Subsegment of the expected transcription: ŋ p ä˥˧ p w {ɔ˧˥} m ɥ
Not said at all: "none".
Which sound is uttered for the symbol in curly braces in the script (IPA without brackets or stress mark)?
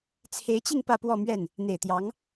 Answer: ɔ˥˧